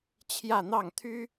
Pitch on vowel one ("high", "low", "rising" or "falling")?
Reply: falling